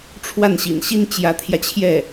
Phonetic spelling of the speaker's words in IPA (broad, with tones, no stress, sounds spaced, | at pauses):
ʈ͡ʂʰ w a˥˩ n ɕ ḭ˨˩ n ɕ i˥ n t͡ɕ j ä˧˥ t̪ʰ j ä˧ t͡ɕʰ j ɛ˥˩